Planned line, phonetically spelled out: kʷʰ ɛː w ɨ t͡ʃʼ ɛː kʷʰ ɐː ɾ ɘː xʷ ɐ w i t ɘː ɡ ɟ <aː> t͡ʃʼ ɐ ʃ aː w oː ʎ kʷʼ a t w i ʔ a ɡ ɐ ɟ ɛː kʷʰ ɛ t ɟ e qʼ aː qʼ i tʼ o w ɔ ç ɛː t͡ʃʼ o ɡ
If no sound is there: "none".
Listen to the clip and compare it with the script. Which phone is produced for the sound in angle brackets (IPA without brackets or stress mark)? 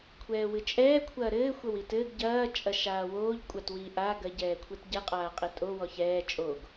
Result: ɐː